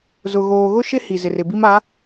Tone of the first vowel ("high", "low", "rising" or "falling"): low